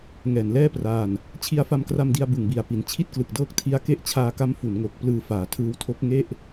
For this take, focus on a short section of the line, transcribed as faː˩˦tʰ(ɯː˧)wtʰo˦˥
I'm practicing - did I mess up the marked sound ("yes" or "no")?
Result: no